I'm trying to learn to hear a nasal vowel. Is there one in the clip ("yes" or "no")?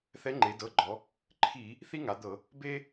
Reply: no